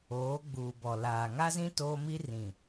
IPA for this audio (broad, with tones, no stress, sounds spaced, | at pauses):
oː˨˦ ɡ͡b uː˨ b ɔ˨ l aː˨ ŋ a˦ z ĩ˦ t oː˦ m i˦ r ĩ˨